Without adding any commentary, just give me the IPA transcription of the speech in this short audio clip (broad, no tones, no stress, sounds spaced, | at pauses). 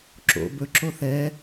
ǁ o̰ b ɵ ǁ o θ ɛ